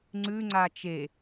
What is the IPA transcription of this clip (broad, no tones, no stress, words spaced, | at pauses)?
ŋ͡ǀʉŋ͡ǀa t͡ʃe